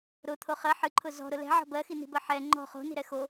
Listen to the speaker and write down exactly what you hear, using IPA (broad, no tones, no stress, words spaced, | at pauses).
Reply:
ɾʊt̪ʰo χɜ ħɨǃʰʊ zɔ̤ɾʊ lɛ̤ʕɔ̤ bɜxini̤bɜ ħɛ ŋ͡ǃɔ̤ χo̤ni̤ɾɛ xo